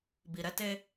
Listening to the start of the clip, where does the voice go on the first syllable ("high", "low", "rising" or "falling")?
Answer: low